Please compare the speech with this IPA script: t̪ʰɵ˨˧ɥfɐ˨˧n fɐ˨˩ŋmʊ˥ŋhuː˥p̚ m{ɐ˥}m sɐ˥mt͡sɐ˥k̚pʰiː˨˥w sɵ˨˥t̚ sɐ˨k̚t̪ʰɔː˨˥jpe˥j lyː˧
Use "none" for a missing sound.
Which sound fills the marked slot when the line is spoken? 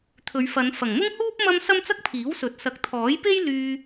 ɐ˥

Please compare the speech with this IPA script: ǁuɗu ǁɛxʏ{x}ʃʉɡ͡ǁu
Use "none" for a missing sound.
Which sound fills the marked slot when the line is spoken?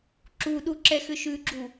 none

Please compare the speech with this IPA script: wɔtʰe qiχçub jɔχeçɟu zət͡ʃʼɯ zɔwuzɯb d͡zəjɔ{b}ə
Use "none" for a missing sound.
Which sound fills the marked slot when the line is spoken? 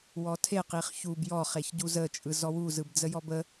b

